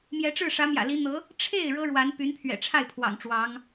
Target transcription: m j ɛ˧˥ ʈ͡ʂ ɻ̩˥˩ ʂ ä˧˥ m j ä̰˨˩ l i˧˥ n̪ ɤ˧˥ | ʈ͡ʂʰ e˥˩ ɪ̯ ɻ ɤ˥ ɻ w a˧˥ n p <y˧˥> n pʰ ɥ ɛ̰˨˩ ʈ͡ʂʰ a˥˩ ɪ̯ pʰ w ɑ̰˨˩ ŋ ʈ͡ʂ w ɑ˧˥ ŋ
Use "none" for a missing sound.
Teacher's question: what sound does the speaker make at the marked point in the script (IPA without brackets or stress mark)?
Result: y˧˥